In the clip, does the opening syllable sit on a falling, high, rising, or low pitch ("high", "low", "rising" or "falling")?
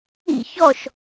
falling